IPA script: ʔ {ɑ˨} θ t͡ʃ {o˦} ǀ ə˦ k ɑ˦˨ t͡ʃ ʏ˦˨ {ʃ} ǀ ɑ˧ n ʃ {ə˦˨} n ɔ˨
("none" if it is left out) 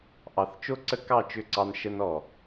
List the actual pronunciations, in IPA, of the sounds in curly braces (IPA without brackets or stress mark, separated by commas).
ɑ˨, o˦, none, ə˧